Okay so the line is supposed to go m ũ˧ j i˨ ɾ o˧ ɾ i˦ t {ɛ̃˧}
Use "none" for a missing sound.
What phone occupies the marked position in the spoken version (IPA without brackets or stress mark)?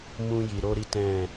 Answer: ɛ̃˦˨